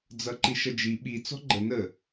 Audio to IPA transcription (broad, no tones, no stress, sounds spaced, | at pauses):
d͡z ʌ ǃ i ʃ ʌ d͡ʒ i ɓ i t͡s ɔ̤ ɡ͡ǃ ə n ə